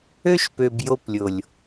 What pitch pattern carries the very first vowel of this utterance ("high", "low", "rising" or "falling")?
high